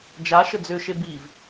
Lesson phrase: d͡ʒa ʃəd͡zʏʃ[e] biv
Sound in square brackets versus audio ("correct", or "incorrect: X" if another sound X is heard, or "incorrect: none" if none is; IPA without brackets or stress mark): correct